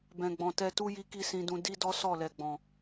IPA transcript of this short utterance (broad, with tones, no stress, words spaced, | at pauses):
bɛ̃˨ɡ͡bɔ̃˨tɛ˧tu˦ ji˦ki˦˨sĩ˧dũ˧ di˦dɔ˦ sɔ˦˨lɛ˨ɡ͡bɔ̃˨